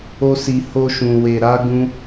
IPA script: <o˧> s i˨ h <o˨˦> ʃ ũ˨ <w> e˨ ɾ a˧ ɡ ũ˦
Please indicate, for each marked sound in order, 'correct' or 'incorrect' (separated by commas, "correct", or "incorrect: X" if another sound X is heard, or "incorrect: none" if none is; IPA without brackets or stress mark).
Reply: correct, incorrect: o˧, correct